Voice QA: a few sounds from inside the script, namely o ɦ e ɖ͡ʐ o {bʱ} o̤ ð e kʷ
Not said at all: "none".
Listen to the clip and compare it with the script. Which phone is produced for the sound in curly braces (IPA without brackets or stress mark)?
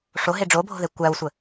bʱ